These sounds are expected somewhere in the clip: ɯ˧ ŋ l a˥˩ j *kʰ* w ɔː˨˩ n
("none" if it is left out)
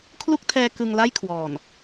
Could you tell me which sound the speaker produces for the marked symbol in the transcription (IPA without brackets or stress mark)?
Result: kʰ